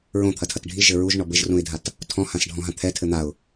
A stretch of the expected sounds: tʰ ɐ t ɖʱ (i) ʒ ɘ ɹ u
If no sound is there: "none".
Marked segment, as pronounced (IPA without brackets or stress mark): i